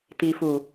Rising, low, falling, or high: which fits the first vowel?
low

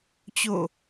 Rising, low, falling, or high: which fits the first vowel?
falling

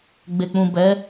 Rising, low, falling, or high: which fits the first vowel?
low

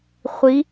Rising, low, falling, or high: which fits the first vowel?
rising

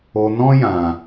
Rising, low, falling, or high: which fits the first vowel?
low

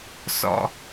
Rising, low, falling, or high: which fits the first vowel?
high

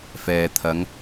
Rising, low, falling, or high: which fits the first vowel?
low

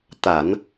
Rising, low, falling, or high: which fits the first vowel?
low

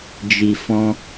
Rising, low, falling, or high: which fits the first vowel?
low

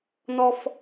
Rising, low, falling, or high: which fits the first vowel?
high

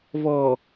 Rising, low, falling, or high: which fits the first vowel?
low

